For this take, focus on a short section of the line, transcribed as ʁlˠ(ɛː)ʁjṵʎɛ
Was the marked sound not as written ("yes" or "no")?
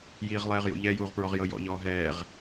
no